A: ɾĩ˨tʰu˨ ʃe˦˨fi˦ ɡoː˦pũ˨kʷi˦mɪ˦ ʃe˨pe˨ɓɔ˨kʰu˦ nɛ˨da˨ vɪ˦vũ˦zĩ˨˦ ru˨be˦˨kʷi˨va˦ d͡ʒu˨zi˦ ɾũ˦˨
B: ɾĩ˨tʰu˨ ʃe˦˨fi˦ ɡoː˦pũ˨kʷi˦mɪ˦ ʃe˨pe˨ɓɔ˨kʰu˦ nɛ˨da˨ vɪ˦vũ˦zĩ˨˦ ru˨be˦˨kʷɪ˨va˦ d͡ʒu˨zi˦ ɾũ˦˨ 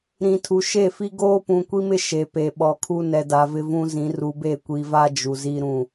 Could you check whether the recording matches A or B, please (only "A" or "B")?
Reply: A